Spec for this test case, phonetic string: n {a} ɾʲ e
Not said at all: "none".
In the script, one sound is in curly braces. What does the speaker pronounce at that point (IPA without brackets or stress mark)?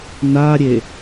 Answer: a